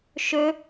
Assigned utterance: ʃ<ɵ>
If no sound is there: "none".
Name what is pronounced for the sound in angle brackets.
ɵ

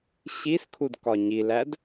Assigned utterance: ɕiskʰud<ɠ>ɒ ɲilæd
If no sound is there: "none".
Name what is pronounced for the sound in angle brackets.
k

